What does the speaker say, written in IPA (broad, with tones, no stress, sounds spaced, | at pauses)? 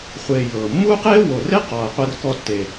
χʷ eː˧ j ɤː˨ mː uː˦ q eː˦ w o˨ r e˦ q ɔː˨ ɐ̯ qʷ ɛ˧ r k ɔ˧ tː e˨